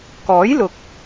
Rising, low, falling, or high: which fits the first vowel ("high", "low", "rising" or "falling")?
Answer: rising